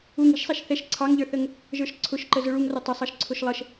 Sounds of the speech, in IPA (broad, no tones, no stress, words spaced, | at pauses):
uŋ i̤ʃsˤæʃ θɛʃ ǀʰɑŋʎə˞θəŋ | ʒə˞ʃǀʰʊʃǃə zʊɭuŋrʌ tˤɪsˤɑʃ ǀʰʊʃlˠəʃ